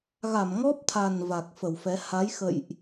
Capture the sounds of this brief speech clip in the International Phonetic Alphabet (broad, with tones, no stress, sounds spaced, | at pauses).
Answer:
ɣ a˧˩ m ŋ ɔ˦˥ p̚ t̪ʰ a˨˩ n v a˨˩ k̚ f ə˧˩ w f ɛ˨˦ h a˨˦ j x ə̰˧˨ j ʔ